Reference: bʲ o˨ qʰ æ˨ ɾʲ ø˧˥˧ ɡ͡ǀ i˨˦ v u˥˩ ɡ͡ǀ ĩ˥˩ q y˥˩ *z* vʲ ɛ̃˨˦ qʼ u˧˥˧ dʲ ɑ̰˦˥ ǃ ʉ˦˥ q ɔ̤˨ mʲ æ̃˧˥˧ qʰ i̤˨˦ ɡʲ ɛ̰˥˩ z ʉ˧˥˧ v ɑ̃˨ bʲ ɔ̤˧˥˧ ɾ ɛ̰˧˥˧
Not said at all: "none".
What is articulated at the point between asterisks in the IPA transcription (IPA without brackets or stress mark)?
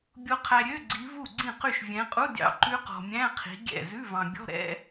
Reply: ʃ